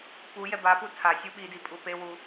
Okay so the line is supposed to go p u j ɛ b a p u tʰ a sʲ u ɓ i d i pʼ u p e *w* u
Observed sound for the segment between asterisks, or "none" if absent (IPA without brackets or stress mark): w